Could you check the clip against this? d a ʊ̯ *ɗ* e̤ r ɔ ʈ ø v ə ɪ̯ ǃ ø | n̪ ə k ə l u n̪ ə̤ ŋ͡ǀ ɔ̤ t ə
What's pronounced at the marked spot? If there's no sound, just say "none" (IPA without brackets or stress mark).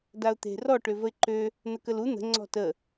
t̪